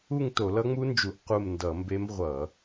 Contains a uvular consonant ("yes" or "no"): yes